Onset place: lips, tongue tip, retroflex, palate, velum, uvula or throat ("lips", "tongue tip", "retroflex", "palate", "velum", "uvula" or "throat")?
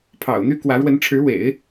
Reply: lips